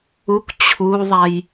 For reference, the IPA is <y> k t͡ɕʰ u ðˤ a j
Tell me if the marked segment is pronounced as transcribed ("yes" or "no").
no